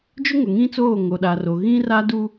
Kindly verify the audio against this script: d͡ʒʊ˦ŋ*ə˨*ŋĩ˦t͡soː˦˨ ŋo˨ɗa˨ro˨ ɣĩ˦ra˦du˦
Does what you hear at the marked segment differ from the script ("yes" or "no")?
yes